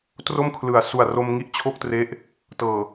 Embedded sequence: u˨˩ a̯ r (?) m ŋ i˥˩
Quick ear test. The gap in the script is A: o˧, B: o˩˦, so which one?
A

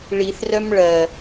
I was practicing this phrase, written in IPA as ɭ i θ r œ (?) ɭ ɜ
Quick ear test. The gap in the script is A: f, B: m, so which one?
B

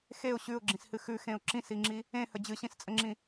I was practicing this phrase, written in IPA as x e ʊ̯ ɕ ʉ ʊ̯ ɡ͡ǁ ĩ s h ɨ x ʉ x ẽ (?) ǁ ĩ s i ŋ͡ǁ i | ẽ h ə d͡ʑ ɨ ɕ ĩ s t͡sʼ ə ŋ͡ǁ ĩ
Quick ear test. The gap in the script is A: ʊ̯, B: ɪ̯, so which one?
A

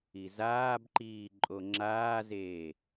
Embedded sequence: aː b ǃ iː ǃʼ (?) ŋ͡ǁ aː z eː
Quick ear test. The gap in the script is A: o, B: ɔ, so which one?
A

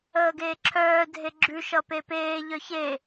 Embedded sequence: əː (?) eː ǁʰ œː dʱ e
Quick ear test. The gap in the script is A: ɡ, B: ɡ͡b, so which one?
A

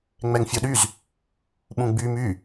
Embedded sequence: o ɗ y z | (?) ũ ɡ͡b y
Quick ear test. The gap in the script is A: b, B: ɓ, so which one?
B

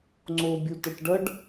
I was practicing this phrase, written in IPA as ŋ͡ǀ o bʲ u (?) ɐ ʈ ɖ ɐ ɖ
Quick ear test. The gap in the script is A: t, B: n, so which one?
A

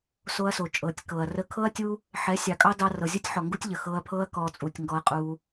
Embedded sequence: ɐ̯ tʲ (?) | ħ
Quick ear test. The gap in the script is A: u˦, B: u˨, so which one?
A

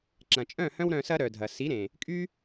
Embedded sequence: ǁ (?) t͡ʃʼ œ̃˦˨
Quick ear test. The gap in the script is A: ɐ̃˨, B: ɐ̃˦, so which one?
A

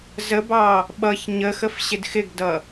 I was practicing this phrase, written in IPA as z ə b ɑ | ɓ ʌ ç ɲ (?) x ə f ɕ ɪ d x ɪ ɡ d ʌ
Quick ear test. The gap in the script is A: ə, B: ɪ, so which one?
A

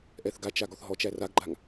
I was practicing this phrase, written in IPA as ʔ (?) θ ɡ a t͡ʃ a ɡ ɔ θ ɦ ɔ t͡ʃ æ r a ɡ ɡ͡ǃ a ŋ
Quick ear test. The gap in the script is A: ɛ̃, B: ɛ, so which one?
B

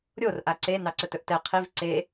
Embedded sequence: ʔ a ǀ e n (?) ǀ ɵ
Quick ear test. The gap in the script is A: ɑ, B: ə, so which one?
A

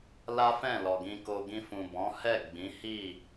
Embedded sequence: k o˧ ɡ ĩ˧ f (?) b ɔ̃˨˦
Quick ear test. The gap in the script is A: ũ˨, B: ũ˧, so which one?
A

